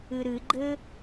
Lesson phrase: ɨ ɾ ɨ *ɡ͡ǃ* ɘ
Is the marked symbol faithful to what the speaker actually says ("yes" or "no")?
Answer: yes